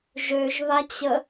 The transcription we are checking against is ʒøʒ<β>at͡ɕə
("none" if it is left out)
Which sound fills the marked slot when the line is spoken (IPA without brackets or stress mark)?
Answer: β